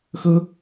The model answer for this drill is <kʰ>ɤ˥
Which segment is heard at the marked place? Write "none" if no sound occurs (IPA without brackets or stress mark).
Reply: x